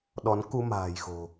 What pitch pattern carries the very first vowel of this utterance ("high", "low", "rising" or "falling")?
rising